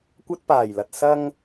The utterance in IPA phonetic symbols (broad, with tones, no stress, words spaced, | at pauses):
kʷɐ˥t̚paː˨˩jlɐ˨t̚ sɐ˧ŋ